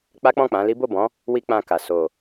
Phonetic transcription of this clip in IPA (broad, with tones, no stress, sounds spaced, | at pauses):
k͡p a˦ k͡p ɔ̃˦˨ k͡p ã˨˦ l i˦ b o˦˨ b ɔ̃˨˦ | w i˧ k͡p ã˧ k a˨ s o˨